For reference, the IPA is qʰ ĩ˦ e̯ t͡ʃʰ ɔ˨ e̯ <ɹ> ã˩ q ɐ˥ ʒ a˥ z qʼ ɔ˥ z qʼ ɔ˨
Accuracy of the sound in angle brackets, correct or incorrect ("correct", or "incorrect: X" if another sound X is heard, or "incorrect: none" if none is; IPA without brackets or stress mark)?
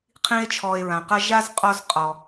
correct